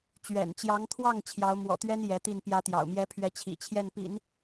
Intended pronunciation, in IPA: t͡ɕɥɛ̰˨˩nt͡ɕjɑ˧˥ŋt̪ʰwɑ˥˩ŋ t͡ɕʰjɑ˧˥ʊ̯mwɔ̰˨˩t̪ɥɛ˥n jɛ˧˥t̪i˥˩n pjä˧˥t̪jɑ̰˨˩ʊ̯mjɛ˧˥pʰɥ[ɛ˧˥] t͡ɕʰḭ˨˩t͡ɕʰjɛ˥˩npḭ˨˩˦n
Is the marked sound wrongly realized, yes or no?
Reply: no